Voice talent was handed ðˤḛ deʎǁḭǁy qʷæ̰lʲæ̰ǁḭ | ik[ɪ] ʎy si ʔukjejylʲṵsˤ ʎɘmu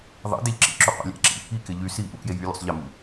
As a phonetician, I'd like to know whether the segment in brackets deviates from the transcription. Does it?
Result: no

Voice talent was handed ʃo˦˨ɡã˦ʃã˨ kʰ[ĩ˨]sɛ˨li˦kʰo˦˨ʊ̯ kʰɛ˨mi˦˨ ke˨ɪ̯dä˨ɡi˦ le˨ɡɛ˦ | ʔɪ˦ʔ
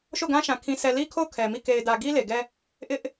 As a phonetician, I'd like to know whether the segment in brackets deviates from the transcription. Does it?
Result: no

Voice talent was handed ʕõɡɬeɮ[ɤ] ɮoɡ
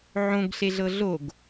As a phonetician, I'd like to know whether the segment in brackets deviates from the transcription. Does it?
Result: no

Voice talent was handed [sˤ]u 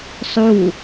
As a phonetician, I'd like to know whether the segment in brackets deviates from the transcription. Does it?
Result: no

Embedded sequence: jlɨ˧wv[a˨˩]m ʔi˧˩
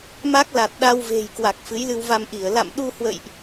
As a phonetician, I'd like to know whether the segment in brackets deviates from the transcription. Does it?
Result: yes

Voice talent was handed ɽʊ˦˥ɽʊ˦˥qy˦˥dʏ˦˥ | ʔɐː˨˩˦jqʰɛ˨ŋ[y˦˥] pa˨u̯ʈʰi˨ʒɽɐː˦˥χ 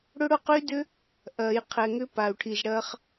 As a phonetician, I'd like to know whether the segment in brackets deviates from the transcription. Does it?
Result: yes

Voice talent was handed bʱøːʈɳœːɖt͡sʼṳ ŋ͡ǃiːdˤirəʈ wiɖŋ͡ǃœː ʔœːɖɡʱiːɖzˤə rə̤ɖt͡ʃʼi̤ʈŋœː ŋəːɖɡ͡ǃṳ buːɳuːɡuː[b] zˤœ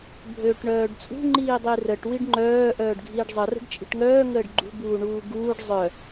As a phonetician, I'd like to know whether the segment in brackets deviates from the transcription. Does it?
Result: yes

